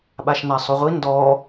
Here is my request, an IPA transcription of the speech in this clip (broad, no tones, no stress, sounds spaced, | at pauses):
ɓ a ʃ n a sˤ u ʁʷ i n d ɔ